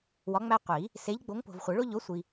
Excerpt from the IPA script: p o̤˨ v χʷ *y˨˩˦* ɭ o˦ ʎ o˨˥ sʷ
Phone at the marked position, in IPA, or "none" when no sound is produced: e˨˩˦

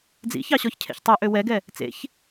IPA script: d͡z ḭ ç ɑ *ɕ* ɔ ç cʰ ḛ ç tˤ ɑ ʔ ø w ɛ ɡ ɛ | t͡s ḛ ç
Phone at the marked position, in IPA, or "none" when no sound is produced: ɕ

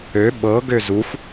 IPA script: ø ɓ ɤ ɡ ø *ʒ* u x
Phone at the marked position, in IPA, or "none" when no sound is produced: z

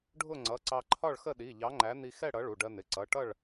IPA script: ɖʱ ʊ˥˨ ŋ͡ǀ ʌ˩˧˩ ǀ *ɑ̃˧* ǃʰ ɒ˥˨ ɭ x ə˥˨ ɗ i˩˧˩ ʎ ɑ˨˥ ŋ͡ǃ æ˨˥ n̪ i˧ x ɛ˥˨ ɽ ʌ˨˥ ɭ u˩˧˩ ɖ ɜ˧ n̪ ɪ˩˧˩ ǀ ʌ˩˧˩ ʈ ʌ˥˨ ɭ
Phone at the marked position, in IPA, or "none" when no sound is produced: ɑ˧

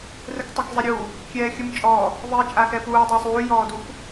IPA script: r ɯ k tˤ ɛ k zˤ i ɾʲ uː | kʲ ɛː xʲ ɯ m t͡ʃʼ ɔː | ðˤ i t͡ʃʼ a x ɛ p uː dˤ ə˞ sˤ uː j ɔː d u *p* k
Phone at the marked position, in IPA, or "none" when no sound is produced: none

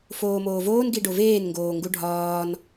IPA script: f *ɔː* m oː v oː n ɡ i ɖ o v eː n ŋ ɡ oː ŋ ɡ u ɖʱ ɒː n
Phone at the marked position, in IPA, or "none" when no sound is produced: oː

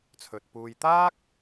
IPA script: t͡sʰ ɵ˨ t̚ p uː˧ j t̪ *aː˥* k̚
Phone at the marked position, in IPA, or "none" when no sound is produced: aː˥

